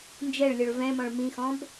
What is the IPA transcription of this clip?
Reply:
n d͡ʒ ɛ ɭ lʲ ɔ ɭ v ɛ̃ m ɔ̃ ɭ m ĩ x ɔ̃ b

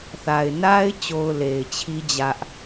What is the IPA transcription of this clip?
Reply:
θ a˨ ɪ̯ n a˦ ɪ̯ t͡ɕ o˨ ʊ̯ l e˨ ɪ̯ t͡ɕʰ i˦ d͡ʑ ä˦ ʔ

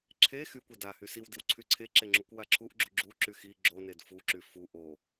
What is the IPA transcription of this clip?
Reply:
ǁʰ e x y kʷ e d a h y s i w d i w ǀʰ y ǀʰ e ǁ e ŋ͡ǁ u kʷ w a ǁʰ u ʔ ɡ͡ǁ u ɡ͡ǁ u ǁ y x i ɡ͡ǁ o n e d f u ǁ y f u ʔ o

